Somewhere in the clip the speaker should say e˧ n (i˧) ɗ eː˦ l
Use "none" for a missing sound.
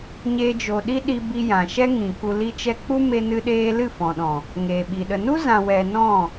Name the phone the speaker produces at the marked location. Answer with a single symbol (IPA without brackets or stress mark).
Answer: ɨ˧